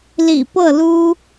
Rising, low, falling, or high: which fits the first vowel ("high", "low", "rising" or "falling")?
low